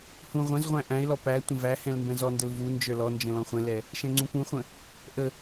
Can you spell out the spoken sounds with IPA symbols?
hũ ʁʷɛ̃zʁʷæ̃ ʔæ̃ɪ̯lɔ pæ tʷə̃væhɛ̃l mbɛ̃zɔndəl vu nd͡ʒə˞lɔnd͡ʒə̃ lɔ̃χʷɛ̃lɛ | ʃɛ̃ŋ͡ǀũpũχʷə̃ | ʔə

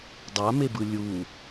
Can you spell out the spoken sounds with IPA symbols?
dˤamebɯ lʲu

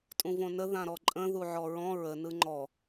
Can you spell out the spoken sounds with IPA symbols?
tʼũvõnə ðãɾɔǃʼə̃ ðuʕɔɹɔ̃ ɹə nɯŋ͡ǃɔ

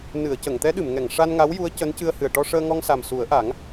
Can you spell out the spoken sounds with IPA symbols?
nɨ˨˩˨ə̯cə˨˩˨ŋt̪ɛ˧˥ ɗɨ˨˩˨mŋɛ˨˩˨ŋ ʂa˧nŋa˧˥wju˧˥ə̯ cəː˧˥ncɨ˧ə̯hɨ˨˩ə̯ ʈɔ˧ʂəː˧ŋɔ˧ŋsa˨˩m su˨˩˦ə̯ʔa˨˩˦ŋ

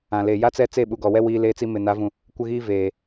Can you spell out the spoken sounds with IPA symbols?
ã˨le˨ ja˦t͡sɛ˦ t͡se˦˨ɓu˨ ɡɔ˨wɛ˦ wiː˦leː˦t͡si˦ mɪ˨ na˨˦vũ˨ | kʷɪ˦ɣiː˦ veː˨

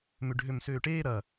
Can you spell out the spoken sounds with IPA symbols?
mʏɖʱømsøːʈeː ɾɐ

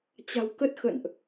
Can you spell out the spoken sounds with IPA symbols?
t͡ɕa̤˨˩wkə˦˥t̚xə̰˧˨nʔ

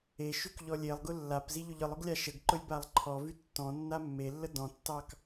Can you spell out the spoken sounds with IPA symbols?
eʃyk ʎɔlʲelˠɡʊ lːap ziʎʊʎɯlˠʊɡ lʲaʃəɡǃʊlʲ balˠǃʰɔvy tːɔ̃ nːamːelːə dɔ̃tːɑk

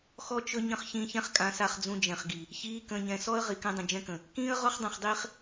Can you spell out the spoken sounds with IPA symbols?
xɔ˦t͡ʃɵ˦ ɲə̃˦χ çĩː˧çɛ̃˦χkʼã˨˦ sa˧χd͡zũ˧d͡ʒɛ̃˨χɡi˨ | çiː˨˦ kə̃ː˨ɲɛ̃˨sɔ˦ə̯ ʁi˨kɛ̃˦dˤə̃˨ d͡ʒɛ̃˦kə̃˨ | kĩː˦ə̯ʁɔ˦χdˤɛ̃˨χdˤiː˧χ

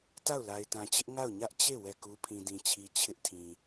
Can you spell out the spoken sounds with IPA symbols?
ta˦˨ʊ̯la˨ɪ̯tã˨t͡ɕɪ˦ʔ ŋa˦˨ʊ̯ɲä˦ʔ t͡ɕe˦˨ wɛ˦˨ku˦ pʰĩ˨dĩ˨t͡ɕʰi˨ t͡ɕʰɪ˦ʔtʰĩ˨

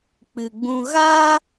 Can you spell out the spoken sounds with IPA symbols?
k͡pɨ˧ɡ͡bũ˦ ɣaː˦

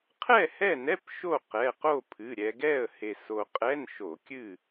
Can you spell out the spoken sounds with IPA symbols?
qʰɛ˥˨hɛ˥˨nɛ˧˥˧p ʃo˥˨qɛ˩˧˩ qo˥˨pʰɨ˩˧˩ ɾʲɛ˧ɡɛ˥˨ə̯ he˧so˧ qʼɛ˧˥˧nʃo˧˩˧ kʲɨ˥˨

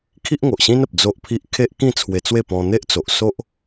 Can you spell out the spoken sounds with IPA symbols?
kʰi˦ʔŋo˨ʔɕĩ˦nə˨p̚ d͡zo˦ʔpʰi˦ʔ kʰe˦ʔkĩ˥˧ t͡sʰwe˧t͡swe˥˧ pɔ̃˧n̪e˦ʔt͡so˨ʔ so˦ʔ

